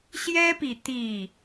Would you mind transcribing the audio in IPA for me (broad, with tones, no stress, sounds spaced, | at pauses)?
ɕ j ɛ˦ p i˨ t̪ i˥˨